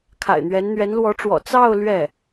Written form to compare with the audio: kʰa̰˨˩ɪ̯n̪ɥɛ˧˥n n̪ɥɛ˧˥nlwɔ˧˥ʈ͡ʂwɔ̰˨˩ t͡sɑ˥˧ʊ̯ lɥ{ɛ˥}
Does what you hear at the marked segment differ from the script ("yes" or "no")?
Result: yes